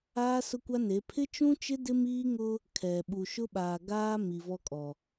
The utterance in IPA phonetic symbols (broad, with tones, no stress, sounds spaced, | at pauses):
aː˦ s ʊ˦ kʷ a˦ n e˨˦ pʰ ɪ˦ t͡ʃ ũ˦ t͡ʃ ɪ˦ d ɪ˦ m iː˦ ŋ ʊ˦ | kʰ ɛ˨ ɓ u˨ ʃ ʊ˦ ɓ aː˨ ɡ aː˦ m i˨ v ɔ˦ kʼ ɔ˨